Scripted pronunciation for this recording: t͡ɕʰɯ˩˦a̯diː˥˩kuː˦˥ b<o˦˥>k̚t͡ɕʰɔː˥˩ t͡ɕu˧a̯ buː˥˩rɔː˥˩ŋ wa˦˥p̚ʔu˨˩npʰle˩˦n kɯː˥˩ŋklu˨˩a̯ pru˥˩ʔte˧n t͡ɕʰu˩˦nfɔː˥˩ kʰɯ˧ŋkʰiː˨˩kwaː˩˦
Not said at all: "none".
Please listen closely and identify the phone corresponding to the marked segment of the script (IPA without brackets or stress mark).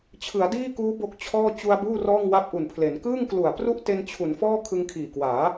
o˦˥